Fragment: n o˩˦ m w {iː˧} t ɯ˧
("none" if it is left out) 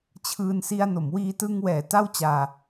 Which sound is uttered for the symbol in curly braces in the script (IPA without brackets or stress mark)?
iː˧